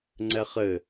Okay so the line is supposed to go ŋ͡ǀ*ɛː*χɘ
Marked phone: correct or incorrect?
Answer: incorrect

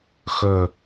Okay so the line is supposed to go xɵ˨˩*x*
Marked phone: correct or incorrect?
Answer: incorrect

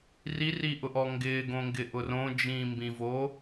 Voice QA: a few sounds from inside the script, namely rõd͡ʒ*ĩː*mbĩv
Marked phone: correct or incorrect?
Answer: correct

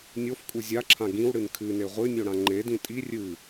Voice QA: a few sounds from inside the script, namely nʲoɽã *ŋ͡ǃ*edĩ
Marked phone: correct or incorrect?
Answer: correct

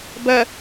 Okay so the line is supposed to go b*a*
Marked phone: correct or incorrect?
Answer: incorrect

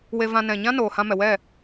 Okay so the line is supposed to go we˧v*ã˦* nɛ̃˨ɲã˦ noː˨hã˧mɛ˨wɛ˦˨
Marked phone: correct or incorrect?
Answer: incorrect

